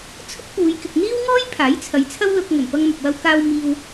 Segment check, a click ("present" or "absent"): absent